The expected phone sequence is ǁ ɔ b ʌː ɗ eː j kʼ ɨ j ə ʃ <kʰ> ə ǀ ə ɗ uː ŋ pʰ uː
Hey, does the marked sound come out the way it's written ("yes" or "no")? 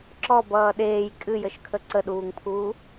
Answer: yes